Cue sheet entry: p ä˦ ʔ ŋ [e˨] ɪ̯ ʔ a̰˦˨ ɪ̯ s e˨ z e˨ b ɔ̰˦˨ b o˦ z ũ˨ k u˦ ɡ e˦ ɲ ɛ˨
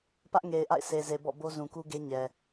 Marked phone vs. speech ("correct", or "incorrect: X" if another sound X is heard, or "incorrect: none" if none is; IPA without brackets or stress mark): correct